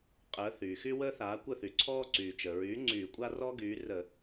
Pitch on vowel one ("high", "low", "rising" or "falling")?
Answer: rising